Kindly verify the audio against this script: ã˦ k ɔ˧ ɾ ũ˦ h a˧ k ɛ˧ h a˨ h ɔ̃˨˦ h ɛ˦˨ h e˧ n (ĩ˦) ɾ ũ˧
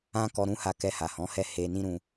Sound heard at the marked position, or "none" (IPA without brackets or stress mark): ĩ˦